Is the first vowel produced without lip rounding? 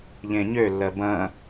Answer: yes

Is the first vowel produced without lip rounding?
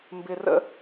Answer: yes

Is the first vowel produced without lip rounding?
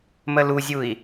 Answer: yes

